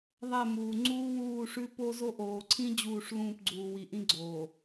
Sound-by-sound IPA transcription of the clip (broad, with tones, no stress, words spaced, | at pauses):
ðˤɛ˦˨muː˨ ŋ͡ǀuː˦wuː˦˨ʂʉ˦ po˦ zo˦ʔoː˨ ǀʰĩ˦ d͡ʑuː˦˨ʂlũː˦˨pɡ͡ǀuː˨ wi˨ʔĩ˦ ɡ͡ǀoː˨